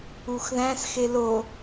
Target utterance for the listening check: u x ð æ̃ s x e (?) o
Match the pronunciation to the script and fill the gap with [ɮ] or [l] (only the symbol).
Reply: l